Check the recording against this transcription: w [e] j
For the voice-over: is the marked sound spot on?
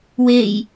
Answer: yes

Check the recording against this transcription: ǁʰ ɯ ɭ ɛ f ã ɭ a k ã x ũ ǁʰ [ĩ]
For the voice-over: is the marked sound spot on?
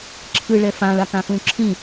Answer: yes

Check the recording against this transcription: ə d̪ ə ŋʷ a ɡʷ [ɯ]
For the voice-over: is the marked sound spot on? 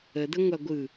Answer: yes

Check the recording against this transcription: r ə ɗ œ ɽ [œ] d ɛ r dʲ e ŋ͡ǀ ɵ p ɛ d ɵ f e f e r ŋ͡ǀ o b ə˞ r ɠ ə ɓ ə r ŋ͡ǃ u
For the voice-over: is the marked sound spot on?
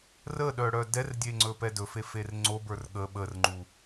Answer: yes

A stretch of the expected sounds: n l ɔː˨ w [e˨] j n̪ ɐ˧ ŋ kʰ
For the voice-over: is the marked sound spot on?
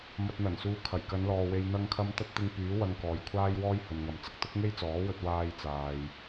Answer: yes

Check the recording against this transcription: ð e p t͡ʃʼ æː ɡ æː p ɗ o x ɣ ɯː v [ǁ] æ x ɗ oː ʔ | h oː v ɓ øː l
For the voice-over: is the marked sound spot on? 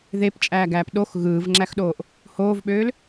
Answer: no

